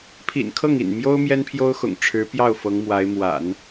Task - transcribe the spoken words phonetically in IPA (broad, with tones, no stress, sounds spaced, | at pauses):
pʰ ḭ˨˩ n kʰ ɤ˥˩ ŋ ḭ˨˩ n m j o˥ ʊ̯ m j ɛ˥ n pʰ j o˥ ʊ̯ x ʊ̰˨˩ ŋ ʈ͡ʂʰ ɻ̩˧˥ p j ɑ˥˩ ʊ̯ f ɤ˧˥ ŋ m w a˧˥ ɪ̯ m w a̰˨˩˦ n